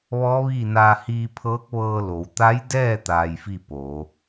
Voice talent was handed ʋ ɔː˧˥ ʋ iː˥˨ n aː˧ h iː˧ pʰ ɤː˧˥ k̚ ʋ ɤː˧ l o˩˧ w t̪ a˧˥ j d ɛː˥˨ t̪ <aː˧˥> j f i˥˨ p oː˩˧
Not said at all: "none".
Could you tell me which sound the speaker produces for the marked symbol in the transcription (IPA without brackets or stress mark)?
aː˧